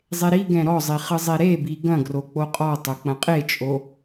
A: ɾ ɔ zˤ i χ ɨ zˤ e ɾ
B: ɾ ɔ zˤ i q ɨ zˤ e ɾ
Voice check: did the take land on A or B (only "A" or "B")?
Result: A